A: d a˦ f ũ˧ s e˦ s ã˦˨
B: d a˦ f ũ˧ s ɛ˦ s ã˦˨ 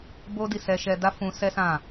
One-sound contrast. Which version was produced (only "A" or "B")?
B